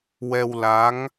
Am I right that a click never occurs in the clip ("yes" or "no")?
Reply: yes